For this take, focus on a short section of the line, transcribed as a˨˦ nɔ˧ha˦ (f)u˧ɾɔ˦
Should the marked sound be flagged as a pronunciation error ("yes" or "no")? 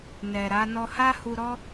yes